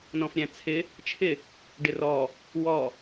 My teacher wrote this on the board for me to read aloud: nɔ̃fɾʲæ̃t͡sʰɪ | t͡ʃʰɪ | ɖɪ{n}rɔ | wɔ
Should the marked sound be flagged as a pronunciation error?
yes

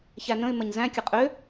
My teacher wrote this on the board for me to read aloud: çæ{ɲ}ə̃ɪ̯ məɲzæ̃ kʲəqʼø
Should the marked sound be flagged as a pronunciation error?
yes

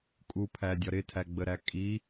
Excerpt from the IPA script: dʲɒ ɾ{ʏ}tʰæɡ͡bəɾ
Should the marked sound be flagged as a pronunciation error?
yes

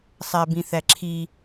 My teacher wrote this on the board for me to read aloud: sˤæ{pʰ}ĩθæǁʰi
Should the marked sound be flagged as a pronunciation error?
yes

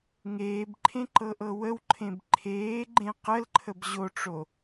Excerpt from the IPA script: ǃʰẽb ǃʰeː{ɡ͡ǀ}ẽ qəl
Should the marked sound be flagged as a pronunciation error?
yes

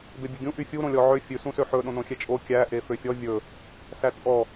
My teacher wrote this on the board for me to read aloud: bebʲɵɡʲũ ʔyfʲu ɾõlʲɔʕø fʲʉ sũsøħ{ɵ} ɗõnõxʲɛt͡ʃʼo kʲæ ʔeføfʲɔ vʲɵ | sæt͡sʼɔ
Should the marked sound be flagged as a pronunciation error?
no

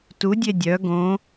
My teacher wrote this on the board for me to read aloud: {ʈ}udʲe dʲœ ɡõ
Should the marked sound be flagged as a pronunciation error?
yes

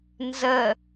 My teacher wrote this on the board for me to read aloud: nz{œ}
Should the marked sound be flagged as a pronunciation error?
yes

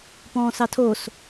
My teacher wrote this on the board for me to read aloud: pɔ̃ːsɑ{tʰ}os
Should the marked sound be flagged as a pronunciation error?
no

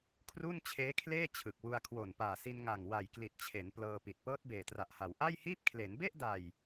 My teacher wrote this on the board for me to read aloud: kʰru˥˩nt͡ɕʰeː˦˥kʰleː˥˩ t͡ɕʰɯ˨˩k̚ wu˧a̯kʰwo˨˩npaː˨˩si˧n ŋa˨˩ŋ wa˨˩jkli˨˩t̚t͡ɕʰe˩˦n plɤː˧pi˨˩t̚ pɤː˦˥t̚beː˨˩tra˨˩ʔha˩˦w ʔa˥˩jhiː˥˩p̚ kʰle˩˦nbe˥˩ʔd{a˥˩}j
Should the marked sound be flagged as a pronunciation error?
yes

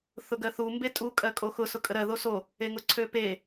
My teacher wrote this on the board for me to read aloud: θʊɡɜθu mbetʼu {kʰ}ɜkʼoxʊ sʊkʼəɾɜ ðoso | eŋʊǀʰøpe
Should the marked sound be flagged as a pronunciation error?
yes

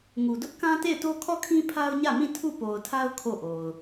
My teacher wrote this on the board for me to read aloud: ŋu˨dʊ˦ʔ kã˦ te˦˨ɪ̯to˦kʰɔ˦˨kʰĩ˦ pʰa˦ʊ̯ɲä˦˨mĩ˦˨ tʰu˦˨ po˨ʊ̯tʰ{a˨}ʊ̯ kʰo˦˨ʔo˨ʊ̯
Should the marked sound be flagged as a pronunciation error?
yes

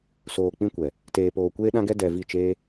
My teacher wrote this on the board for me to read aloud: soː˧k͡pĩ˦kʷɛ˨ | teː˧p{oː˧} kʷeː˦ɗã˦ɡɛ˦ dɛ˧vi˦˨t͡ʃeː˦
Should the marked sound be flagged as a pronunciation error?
no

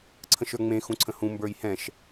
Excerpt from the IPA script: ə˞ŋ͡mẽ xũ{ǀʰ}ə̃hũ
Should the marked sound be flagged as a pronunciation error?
no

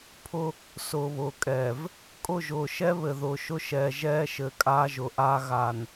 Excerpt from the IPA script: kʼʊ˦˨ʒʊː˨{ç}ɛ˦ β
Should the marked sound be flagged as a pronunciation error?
yes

